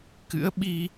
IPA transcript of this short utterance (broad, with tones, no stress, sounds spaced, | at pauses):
k ɨ̰˧˥ ə̯ ɓ i˧